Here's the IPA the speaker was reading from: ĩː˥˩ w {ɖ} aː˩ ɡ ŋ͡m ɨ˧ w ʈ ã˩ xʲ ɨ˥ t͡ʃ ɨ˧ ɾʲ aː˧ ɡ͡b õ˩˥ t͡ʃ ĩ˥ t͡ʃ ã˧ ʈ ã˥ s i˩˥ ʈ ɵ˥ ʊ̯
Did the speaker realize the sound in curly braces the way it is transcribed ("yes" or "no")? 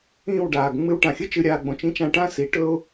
yes